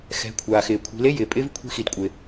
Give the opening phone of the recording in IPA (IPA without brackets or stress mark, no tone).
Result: x